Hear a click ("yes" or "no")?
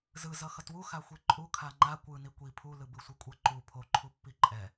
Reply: yes